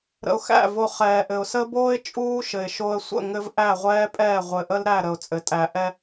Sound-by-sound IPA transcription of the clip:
ɾə̰˨ʊ̯xæ̰˦˨vo˨ χɛː˨ʔɘ˨ʊ̯ sə˦boː˦ɪ̯ t͡ʃʼuː˦ʃɘ˨ɪ̯ ʃo˨ə̯sʷə̰˦˨ ŋɘ˦vʔæ˦˨ʁʷɛː˦pʼɛː˦˨ ʁʷɘ˨ʔə˦lɾæ˦˨ ɾə˨ʊ̯t͡sʼɘ˨ tʼæ˨ʔɛ˦

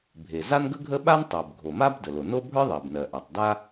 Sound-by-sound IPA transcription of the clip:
bʱe˩za˥nɡə˥ɡʱə˥ ɓa˥ntˤɜ˩b ɡʱo˩ma˥b də˩lo˩no˥ bʱə˞˥ðˤɜ˩bnɜ˩ʔa˩tˤ da˥

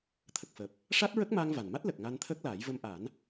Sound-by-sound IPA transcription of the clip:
t̪ʰə˨˩k̚fəː˨˩p̚ | ʂa˦˥t̚ɹə˦˥k̚maː˧ŋ va˨˩nma˦˥t̚ lə˨˩k̚ ŋa˧nt̪ʰəː˦˥k̚ laː˨˩˦jvə˧mʔa˨˩˦n

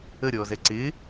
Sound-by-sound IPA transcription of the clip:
ə ɾʲɔːzɛǀɪ

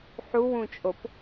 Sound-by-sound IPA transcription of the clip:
ħuwũt͡ʃʼop

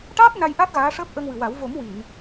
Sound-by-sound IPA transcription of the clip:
ʈaː˦˥t̚ na˧jʔa˦˥t̚ ɣaː˧˥ʂəː˦˥p̚ ʔə˧ŋwɨ˨˩wa˨˩˦w vo˨˩˦m wi˨˩˨n

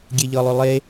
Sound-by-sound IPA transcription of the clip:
ɡʲeʎɤlˠʏ lˠe

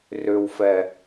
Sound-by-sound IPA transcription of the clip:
rʏwfɛ

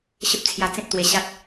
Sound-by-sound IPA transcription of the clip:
ɕə˦p̚t͡sʰja˧ t͡sẽ˦p̚t̪we˧ɕa˦t̚

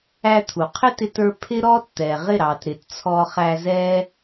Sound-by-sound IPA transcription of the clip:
æ˦t̪ʰu˨ qʰɪ˦tɪ˧tə˞˧ pʰɪ˦ ɾɔː˦tt̪ɛː˨ʁɪ˦˨ɾɑ˨t ɾɪ˨t t͡sʰɔ˧χæ˧zɛː˦

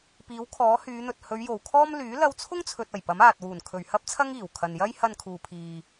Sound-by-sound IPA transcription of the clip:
piː˨˥wkʰɔː˨˥hyː˨˧n̪ɵ˨t̚ hɵ˨˧ɥjo˨˩wkʰɔː˥m lyː˨˥ lɐ˧wt͡sʰʊ˥ŋt͡sʰɵ˨t̚ɐ˨˩j pɐ˨˥m aː˨t̚wuː˨˩n kʰɵ˨˩ɥhɐ˥p̚t͡sʰɐ˥ŋ iː˨˩w kʰɐ˨njɐ˥j hɐ˧nkʰuː˨pʰiː˨

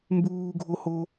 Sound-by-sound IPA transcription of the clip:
mbuːɡʱoho

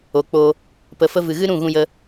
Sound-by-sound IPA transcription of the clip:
o˨k͡po˧ | pə˨fə˧ vɨ˨ɣɨ˦ ɾũ˦˨ɣũ˧jə˧

